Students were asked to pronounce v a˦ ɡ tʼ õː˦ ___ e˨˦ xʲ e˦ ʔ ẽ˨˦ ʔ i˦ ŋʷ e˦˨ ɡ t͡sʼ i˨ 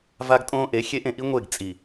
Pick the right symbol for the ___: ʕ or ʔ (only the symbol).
ʔ